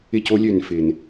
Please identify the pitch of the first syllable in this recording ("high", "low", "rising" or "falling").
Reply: high